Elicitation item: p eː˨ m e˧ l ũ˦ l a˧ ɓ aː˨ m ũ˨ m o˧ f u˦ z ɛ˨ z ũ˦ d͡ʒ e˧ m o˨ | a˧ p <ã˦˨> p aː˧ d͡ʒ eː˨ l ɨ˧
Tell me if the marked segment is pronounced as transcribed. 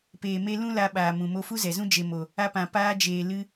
no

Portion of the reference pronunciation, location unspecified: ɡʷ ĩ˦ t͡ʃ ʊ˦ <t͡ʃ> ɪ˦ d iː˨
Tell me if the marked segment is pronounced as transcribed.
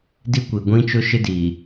no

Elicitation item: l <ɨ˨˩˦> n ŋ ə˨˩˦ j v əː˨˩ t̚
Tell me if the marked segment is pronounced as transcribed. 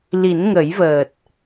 no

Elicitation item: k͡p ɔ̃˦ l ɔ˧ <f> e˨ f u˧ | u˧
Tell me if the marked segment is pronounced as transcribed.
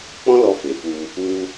yes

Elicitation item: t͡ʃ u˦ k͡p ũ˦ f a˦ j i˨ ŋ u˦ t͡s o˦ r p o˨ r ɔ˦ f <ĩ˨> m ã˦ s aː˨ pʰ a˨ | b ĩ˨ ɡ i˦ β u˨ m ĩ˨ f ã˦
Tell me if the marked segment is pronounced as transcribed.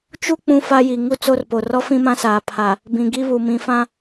no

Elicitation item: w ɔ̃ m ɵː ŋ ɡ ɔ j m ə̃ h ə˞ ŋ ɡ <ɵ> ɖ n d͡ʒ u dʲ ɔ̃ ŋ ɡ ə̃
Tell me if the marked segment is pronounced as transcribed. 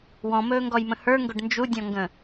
yes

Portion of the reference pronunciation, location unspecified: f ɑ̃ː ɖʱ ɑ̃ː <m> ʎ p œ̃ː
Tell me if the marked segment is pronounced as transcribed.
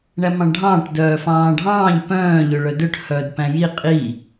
no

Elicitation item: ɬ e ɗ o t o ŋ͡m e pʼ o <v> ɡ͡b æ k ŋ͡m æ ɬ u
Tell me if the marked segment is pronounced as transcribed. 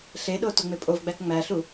yes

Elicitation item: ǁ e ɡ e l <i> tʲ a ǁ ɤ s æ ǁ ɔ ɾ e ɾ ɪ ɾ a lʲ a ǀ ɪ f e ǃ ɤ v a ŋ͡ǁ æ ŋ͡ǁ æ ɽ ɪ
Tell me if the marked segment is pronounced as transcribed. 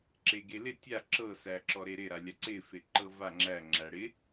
no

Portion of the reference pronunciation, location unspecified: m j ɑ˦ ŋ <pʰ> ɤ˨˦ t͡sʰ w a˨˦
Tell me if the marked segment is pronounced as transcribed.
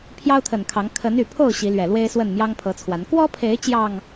yes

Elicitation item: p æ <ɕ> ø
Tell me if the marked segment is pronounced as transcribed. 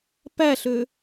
no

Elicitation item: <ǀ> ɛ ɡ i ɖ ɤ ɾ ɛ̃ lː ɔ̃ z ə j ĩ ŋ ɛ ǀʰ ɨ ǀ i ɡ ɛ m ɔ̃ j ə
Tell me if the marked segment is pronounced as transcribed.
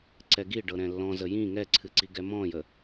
yes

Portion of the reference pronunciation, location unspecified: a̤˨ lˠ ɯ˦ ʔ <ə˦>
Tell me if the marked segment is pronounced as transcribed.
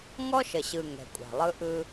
no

